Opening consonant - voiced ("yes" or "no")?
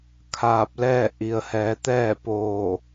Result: no